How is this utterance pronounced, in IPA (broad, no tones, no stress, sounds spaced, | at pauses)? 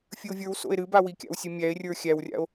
fʲ ɨ o̯ vʲ ə˞ w s o̰ e̯ ɾ ɨ b a w i kʲ a̰ w sʲ ɨ mʲ æ e̯ rʲ ə˞ xʲ æ w rʲ a̰ o̯